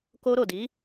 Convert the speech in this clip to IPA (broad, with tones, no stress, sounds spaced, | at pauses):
k o˧ ɾ o˨ d i˨˦